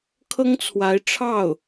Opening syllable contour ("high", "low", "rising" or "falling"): high